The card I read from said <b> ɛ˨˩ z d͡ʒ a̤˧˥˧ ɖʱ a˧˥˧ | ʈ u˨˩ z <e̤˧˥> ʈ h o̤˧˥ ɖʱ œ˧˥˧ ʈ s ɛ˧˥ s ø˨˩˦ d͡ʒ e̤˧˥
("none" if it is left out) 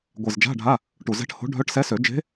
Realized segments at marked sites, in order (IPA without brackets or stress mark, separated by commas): ɡʷ, ɛ̤˧˥